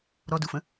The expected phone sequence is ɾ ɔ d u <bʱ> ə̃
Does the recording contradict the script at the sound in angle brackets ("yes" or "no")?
yes